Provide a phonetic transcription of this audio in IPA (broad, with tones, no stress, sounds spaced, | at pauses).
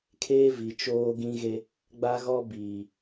kʰ eː˦ v i˨ t͡ʃ oː˦ ɡ ĩ˦ ɣ e˦ | ɡ͡b a˦ ɣ ɔ˦ b iː˨